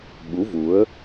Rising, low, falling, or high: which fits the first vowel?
rising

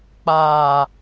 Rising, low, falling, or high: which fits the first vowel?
low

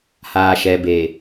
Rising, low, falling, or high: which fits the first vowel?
low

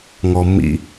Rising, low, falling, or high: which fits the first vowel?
low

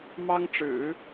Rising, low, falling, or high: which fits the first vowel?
high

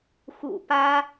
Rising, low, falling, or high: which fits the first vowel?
low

